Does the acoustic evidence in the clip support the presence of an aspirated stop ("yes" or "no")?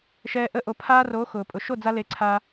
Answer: yes